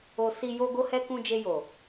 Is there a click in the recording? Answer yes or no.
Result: no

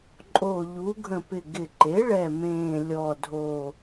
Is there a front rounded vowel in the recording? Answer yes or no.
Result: no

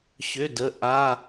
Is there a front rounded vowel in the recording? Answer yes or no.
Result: yes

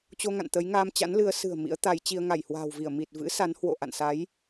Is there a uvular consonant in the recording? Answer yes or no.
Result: no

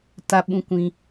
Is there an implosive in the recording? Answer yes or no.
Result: yes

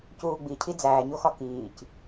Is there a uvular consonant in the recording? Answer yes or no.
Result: no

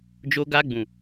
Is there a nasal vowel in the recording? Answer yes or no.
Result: yes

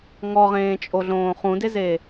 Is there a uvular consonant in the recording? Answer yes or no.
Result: yes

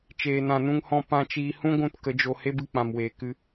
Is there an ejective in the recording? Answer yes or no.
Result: no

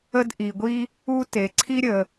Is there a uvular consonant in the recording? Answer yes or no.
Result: no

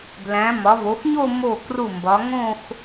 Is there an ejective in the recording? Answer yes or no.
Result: no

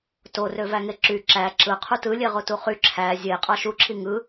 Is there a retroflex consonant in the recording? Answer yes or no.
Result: no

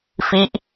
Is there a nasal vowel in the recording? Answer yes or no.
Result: no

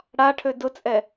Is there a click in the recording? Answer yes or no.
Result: no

